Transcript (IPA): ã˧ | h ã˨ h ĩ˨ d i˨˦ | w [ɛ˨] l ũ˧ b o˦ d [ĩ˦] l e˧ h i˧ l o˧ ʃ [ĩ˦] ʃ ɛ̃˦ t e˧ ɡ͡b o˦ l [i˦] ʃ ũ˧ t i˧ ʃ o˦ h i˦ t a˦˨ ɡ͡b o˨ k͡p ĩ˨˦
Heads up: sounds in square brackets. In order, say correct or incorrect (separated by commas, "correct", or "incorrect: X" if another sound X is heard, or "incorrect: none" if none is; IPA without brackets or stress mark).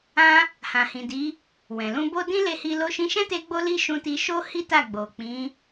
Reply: incorrect: ɛ̃˨, correct, incorrect: ĩ˧, correct